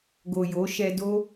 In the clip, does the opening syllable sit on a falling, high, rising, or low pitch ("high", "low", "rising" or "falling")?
low